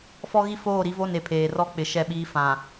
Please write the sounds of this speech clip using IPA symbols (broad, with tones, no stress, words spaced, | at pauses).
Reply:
fɔ˦ɣi˦foː˦˨ ɾi˦vo˦˨ne˨ pʰeː˨rɔ˦k͡pɪ˨ ʃɛ˦˨ɓiː˦ fã˨